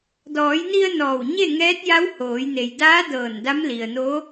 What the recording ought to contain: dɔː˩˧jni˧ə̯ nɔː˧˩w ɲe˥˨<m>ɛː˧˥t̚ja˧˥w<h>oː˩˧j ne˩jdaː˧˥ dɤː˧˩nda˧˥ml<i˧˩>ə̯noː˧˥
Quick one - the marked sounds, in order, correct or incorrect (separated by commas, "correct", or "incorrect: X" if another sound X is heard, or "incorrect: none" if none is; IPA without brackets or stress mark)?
incorrect: ŋ, correct, incorrect: i˩